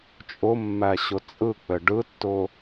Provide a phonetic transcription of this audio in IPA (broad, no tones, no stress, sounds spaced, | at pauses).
t͡ʃʼ ʊ mː æ ɕ ʊ t͡sʼ ɯ k͡p ɘ ɖ ɯ tː ʊ